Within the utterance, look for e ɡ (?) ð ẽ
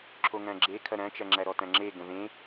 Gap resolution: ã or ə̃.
ə̃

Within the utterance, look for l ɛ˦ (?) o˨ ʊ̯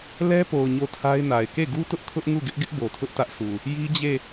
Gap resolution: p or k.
p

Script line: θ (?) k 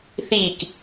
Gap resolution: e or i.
i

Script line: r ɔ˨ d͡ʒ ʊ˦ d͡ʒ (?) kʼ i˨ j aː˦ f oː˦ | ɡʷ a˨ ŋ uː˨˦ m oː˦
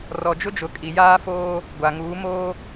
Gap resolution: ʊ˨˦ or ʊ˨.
ʊ˨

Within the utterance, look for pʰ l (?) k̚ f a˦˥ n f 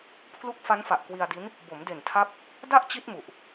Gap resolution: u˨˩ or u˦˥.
u˦˥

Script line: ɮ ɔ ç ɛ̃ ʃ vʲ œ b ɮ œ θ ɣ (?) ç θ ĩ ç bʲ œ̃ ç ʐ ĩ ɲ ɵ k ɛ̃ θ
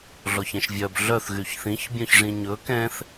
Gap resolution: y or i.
y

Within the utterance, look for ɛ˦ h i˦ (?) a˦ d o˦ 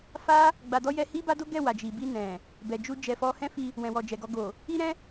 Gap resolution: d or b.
b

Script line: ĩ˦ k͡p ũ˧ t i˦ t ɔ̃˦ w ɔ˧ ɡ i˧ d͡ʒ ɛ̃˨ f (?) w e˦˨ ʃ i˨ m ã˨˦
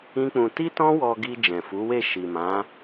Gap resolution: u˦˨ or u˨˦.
u˨˦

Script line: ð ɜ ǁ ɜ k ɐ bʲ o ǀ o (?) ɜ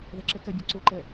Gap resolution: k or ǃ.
ǃ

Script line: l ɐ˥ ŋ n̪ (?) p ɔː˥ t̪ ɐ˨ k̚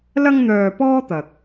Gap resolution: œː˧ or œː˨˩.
œː˧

